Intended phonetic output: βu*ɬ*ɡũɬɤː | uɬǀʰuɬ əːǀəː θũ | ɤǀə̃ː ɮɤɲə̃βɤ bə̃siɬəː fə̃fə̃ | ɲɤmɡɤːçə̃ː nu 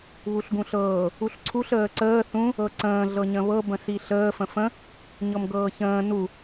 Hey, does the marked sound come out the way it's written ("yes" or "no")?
yes